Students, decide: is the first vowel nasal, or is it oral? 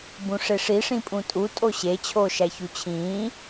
nasal